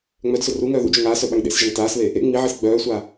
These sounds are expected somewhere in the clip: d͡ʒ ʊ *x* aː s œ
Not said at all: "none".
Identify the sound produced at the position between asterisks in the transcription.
ŋ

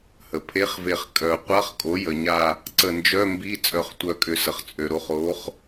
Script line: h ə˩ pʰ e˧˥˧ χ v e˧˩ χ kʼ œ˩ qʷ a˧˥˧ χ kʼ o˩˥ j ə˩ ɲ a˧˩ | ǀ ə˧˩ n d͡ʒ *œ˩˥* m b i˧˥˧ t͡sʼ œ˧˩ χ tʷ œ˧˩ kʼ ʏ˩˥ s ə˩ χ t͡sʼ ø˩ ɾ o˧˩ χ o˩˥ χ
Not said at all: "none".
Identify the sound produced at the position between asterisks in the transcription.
œ˧˥˧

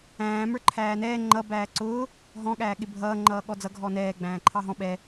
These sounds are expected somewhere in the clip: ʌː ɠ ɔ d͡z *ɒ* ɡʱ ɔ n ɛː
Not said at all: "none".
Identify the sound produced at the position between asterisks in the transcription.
ʌ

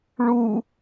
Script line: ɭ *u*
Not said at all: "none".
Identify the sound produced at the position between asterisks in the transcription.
u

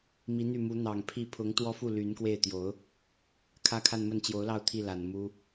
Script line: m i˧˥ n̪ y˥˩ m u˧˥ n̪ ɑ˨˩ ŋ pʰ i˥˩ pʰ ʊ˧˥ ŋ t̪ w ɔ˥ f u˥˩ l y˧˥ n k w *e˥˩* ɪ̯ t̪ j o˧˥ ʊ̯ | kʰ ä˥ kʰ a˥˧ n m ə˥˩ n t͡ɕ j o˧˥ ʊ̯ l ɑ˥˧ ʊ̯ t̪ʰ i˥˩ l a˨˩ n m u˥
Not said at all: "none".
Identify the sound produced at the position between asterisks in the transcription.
e˥˩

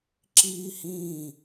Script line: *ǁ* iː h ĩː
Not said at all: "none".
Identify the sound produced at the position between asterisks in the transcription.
ǁ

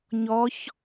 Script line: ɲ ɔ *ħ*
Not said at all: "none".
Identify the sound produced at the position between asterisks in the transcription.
ç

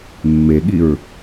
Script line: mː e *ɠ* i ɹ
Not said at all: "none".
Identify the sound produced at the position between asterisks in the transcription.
ɠ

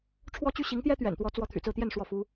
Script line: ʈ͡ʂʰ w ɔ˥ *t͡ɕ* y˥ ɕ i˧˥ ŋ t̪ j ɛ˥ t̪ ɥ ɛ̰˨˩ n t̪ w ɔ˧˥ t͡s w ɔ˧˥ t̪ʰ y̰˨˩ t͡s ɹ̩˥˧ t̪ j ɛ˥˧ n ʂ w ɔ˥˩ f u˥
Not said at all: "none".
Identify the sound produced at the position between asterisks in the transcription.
t͡ɕ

